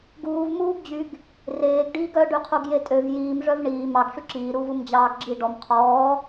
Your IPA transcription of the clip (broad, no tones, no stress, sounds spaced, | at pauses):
ɡ uː v m uː ɡ d͡ʑ y ɡ | r eː ɡ ɖ iː ɡ œ ɖ y qʰ u ɡ j e tʼ ø v j iː m ʐ œ v ɳ iː m ɑ ɡ ʂ y ǁ iː ɾ uː v u m d͡ʑ ɑː ɡ ɡ͡ǁ i ɖ ɔ m qʰ ɔː